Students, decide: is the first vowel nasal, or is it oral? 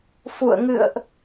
oral